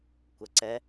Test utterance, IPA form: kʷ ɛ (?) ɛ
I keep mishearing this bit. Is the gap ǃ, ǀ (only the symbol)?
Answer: ǀ